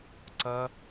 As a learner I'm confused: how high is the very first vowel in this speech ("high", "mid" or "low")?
low